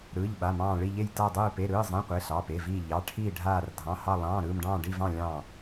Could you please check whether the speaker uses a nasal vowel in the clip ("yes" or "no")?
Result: yes